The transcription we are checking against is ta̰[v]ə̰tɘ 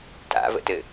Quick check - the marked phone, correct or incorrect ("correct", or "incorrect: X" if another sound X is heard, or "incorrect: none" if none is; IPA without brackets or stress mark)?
correct